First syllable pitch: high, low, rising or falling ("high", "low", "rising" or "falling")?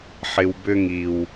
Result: low